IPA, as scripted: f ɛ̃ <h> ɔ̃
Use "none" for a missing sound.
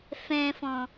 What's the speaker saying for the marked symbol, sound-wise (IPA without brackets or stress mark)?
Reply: f